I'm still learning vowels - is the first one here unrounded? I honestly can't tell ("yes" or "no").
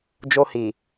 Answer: no